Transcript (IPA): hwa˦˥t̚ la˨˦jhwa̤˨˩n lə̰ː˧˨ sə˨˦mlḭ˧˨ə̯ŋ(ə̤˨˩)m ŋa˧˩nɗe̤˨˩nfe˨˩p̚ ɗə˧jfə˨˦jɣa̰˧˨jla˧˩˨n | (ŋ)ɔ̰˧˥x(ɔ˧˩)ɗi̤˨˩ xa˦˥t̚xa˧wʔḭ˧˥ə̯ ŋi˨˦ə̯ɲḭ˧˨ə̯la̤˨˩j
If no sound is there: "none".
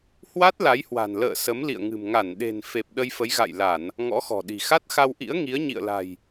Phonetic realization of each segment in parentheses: ɨ̤˨˩, ŋ, ɔ̤˨˩

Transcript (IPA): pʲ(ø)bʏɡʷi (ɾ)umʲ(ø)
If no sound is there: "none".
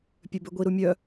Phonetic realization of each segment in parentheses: ø, ɾ, œ

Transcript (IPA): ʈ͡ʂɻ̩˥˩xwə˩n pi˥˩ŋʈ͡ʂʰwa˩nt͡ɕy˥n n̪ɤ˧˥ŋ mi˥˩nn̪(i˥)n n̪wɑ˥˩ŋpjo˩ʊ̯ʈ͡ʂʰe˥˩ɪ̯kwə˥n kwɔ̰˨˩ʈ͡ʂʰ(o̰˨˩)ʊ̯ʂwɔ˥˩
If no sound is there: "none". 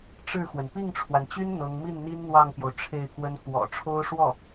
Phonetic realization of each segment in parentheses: i˥, o˥

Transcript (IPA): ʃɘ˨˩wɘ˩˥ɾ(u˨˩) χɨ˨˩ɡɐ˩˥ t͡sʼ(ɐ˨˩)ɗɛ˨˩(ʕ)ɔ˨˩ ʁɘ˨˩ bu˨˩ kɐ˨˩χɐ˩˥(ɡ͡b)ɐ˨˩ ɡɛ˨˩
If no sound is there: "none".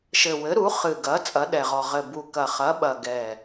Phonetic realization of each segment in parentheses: u˩˥, ɐ˩˥, ʁ, ɓ

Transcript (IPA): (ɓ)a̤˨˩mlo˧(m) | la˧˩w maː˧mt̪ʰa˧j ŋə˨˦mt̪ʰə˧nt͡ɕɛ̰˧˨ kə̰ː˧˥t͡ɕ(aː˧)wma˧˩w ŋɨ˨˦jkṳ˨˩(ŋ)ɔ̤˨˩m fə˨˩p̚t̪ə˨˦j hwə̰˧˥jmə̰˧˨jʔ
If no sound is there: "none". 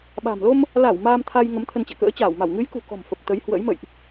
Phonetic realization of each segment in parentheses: ɓ, m, aː˧˩, k

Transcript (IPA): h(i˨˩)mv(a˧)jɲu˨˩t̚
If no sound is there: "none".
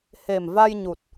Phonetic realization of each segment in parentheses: e˨˩, a˧

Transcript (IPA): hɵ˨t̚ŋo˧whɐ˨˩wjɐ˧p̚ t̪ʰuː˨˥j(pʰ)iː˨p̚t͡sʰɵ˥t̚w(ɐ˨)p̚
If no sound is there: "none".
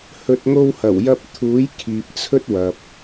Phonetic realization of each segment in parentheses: kʰ, ɐ˨

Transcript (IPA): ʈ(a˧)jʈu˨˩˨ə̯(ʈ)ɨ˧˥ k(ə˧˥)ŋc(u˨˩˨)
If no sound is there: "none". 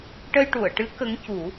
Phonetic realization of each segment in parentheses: ə˧, ʈ, ə˧˥, u˨˩˦

